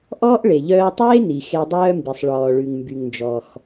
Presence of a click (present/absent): absent